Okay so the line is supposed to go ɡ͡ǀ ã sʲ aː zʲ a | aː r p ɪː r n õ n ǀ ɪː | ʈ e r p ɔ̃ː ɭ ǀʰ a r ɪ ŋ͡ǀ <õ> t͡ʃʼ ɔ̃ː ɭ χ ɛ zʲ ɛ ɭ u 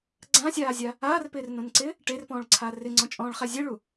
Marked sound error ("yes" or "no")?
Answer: yes